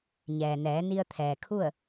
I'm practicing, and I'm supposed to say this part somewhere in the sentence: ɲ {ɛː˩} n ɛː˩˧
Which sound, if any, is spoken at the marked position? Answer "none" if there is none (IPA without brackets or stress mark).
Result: ɛː˩